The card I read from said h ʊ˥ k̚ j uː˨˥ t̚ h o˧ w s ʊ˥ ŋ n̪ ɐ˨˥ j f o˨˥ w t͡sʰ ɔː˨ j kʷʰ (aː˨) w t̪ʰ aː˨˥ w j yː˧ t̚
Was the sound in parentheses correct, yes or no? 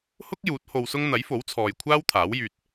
no